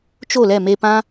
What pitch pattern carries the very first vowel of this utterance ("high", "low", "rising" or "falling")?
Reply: falling